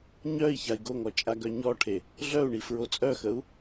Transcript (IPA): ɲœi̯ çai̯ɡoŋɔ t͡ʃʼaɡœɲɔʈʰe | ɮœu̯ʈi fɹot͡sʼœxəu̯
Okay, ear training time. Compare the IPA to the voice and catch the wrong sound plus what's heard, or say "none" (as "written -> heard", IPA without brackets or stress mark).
ʈ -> ɳ